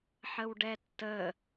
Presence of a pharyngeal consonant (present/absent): present